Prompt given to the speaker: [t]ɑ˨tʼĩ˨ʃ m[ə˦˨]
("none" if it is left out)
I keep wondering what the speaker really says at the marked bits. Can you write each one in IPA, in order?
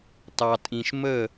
t, ə˦˨

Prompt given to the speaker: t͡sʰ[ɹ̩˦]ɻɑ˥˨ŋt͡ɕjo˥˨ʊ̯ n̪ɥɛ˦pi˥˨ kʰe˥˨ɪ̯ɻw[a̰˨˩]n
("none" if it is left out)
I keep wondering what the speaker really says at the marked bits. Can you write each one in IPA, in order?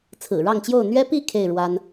ɹ̩˨˩, a˦

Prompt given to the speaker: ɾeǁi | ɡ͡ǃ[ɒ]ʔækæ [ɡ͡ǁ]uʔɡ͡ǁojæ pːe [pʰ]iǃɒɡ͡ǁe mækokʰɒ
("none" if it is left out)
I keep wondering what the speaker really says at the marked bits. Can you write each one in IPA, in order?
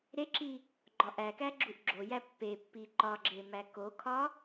ɒ, ɡ͡ǁ, pː

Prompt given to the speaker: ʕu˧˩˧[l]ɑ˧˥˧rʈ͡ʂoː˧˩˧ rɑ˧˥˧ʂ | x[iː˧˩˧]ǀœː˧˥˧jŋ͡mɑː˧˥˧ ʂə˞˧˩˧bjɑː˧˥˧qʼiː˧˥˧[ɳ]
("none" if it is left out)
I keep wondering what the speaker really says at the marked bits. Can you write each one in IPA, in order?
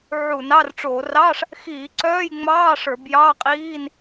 n, iː˧˩˧, n

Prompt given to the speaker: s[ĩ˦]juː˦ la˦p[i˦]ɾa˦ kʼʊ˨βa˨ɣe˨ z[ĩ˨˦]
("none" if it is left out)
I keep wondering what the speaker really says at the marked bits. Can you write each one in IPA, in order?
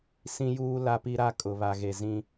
ĩ˦, i˦, ĩ˦

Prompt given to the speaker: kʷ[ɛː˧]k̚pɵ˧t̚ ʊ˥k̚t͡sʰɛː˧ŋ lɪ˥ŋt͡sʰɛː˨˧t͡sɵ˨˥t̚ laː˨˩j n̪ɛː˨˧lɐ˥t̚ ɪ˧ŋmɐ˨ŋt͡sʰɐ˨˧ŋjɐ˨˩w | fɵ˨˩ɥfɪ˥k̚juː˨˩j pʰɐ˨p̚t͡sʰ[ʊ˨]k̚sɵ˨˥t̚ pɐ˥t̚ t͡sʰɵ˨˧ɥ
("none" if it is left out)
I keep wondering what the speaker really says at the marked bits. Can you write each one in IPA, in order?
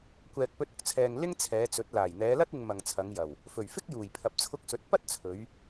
ɛː˨, ʊ˧

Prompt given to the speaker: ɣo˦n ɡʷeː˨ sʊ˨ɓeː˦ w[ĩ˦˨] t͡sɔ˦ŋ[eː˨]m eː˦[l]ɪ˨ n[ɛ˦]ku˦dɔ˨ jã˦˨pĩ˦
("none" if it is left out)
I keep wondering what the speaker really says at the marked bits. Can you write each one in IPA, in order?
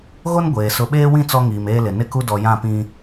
ĩ˦˨, iː˨, l, ɪ˦

